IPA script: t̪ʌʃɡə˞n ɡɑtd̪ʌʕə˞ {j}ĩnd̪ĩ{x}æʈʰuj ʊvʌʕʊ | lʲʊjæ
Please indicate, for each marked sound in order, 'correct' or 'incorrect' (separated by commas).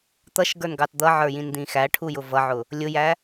correct, correct